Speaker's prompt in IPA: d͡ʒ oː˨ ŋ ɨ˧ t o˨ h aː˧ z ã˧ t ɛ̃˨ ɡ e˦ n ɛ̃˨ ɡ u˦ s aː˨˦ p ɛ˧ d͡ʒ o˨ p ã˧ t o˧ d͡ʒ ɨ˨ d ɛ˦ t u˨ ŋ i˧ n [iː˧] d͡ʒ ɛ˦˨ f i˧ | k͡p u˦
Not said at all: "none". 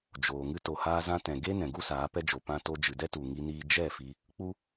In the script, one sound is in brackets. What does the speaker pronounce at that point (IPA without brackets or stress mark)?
iː˧